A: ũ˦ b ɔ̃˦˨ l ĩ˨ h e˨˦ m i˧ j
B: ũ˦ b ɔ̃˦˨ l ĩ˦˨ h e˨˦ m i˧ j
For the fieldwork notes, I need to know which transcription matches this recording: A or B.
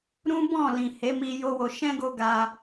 A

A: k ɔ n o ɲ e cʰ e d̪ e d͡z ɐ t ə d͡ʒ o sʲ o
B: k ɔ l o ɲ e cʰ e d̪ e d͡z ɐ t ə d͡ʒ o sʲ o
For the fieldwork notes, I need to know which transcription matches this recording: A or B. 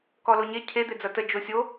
B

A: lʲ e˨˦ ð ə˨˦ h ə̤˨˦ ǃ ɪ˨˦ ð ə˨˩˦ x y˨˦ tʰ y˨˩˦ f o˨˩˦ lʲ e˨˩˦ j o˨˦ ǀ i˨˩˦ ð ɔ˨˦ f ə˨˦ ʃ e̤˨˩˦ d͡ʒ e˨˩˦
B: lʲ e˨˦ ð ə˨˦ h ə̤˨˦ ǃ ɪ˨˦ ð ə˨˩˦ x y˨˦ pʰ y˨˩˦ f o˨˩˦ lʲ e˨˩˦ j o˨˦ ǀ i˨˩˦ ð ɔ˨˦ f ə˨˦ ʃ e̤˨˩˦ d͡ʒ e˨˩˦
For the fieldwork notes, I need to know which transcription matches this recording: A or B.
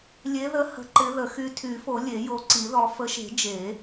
A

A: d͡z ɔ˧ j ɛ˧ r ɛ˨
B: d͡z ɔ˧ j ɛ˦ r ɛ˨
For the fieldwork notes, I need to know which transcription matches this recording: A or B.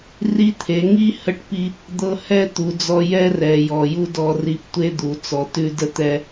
B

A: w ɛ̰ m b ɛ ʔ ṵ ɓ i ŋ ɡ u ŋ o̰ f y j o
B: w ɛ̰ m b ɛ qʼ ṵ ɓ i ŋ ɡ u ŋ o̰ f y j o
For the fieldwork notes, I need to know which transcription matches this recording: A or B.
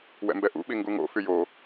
A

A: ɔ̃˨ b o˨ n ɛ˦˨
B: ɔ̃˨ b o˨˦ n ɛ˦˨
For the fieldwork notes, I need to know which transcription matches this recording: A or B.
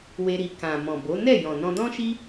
B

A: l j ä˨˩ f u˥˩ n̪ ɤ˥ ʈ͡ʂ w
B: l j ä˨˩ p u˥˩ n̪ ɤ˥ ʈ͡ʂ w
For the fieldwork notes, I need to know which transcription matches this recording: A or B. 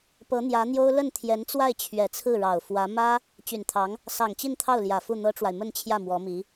A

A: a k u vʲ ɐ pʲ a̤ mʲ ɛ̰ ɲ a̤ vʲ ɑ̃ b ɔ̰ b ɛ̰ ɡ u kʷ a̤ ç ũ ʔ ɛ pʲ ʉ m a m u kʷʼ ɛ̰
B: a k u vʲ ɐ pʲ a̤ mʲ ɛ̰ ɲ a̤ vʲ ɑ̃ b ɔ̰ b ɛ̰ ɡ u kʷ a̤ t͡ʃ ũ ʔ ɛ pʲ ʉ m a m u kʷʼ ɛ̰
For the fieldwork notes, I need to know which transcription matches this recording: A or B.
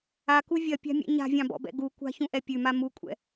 A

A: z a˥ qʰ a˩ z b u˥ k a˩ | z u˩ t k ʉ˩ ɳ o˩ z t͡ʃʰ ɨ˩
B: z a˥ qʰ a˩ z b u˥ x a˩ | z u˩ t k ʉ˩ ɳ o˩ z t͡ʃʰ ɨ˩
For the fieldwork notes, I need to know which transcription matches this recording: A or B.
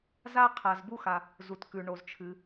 B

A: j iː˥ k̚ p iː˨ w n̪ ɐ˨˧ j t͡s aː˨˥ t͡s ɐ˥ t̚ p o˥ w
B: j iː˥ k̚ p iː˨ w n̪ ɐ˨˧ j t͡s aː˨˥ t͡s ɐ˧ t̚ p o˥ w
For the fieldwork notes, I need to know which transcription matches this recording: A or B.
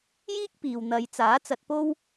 B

